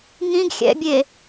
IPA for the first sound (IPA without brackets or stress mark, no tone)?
ŋ